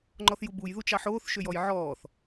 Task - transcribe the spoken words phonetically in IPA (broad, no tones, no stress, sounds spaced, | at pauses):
ŋ͡ǃ ɔ θ j u b u j ð u t͡ʃ ɑ ħ oː θ ʃ ø j ɔ j ʕ ɔː θ